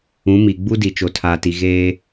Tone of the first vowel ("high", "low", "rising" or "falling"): rising